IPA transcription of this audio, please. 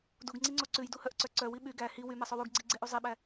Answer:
duɡŋ͡ǀiŋ͡ǀo ǀʉjduhœʔǀœ ǀœwi ɓy ɡæ hi wymɛsˤow uɡɡ͡ǀiɡ͡ǀeʔu zˤiɓæ

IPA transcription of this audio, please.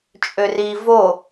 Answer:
t͡ʃʼøri vo

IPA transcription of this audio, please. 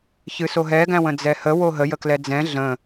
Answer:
çɨsoɦɛ ɡæ̃wə̃d͡zɛhə woɦə jəklɛd͡zɛ̃ ɮə̃

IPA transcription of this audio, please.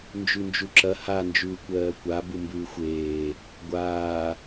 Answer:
nd͡ʒʉnd͡ʒuǁɐ ha nd͡ʒʉːkʷɜːkʷa bumbʉːxʷeː | ɡʷaː

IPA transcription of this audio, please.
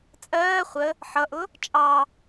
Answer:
t͡sʼɜː χʷə | ħʌʔʊ | t͡ʃʼɑ

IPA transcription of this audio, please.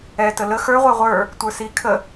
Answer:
ɛ tələ xə˞ ʁʷɛʁʷə˞ | tʷə˞si kʰə

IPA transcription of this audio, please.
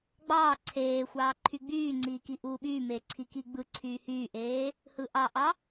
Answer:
ɡ͡bɑː ǀʰeːxʷɑː ǃʰyɡ͡byːŋ͡ǀiː kiʔuːɓyːmeː ǀʰikiɡ͡bɯǀʰyː hyːʔeː | hɯʔɑʔɑ

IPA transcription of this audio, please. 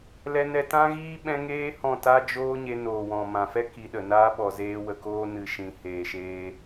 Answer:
lɛ˧nɛ˧ tã˦ɣiː˦ ɓɛ̃˦ ŋeː˦ hɔ̃˦˨ ta˦d͡ʒoː˦ɲe˧ noː˨wɔ̃˨mã˨fɛ˦ ki˧ɗə˨ naː˧ɓɔ˨ zeː˧ wə˨koː˧nɨ˨ ʃĩ˨heː˨ʃeː˧

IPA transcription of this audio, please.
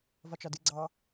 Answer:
vɒt͡ʃɒdɨ ɡ͡ǀɑ

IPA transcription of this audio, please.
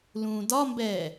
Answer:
lũːdɒmbɛː

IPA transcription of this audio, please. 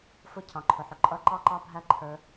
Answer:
fʊ˦˥ cʰɑ̃˩˧ǃʰʊ˩˧ħʊ˩˧ ǃʼʌ˦˥ ǃɑ˦˥ǃɑ˦˥bʱæ˦˥ ǃʰə˞˦˥

